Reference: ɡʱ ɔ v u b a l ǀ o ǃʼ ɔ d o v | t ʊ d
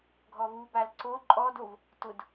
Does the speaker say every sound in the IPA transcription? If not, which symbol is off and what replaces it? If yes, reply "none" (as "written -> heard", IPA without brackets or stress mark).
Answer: none